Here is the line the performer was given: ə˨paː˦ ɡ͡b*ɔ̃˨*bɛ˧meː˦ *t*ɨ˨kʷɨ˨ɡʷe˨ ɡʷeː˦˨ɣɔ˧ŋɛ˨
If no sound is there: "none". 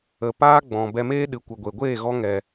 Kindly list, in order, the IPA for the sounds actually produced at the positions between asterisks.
ɔ̃˨, ɗ

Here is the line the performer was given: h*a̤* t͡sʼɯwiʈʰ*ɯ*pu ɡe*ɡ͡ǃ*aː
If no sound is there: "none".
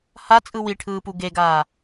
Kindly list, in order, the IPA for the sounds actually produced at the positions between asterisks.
a, ɯː, ɡ

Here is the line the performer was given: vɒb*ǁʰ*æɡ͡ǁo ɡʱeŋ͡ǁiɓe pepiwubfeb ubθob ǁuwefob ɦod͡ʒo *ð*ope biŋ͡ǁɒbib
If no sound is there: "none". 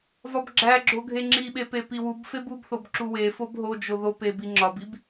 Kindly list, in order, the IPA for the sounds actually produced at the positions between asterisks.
ɡ͡ǁ, ð

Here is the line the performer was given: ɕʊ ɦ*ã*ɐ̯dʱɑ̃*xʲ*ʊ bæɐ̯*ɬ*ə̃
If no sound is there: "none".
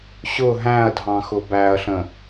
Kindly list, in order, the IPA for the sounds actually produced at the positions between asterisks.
æ̃, x, ɬ

